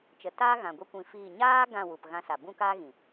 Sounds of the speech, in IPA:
t͡ʃ ə˨ t aː˦ ɣ ã˨ ɡʷ i˦ kʷ ĩ˧ f iː˦˨ ɲ aː˦ ɡ ã˦˨ w u˨ p ɣ ã˧ s a˨ b ũ˦ k aː˦ ɣ ĩ˨

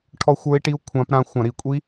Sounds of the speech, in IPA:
ʈʰ ɔ˦˥ xʷ ə˞˦˥ i̯ ʈ i˦˥ u̯ kʷʰ ã˦˥ p ɾ ã˦˥ xʷ ã˧˩˧ ɾ i˧˩˧ kʷʼ i˦˥

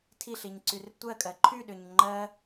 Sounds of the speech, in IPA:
tʰ i ɬ i ɲ ǀ y r tʷ ɜ kʼ ɜ ǃʰ y ɗ ʏ ɲ ŋ͡ǃ ɜ

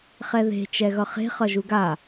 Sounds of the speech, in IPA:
χ ɛ ð e̤ t͡ʃ ɛ ɣ ʌ χ e̤ χ ʌ ʒ u ɡ a

